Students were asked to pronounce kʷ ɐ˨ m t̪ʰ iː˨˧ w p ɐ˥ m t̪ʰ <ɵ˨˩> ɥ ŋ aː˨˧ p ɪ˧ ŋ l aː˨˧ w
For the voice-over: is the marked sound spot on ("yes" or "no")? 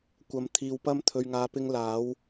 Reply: no